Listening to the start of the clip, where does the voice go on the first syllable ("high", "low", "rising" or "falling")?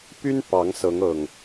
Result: high